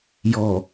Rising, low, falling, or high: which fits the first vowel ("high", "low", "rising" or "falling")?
low